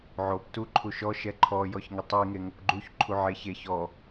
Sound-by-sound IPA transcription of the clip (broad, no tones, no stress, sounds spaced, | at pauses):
ʕ o p t u ǃʰ u ʃ ɔ ʃ ɛ ǃʰ ɔ j ɔ ç ŋ ɪ tˤ i ŋ e ŋ o p ɡ͡ǃ u ç ǃʰ u ʕ e ç e ç ɔ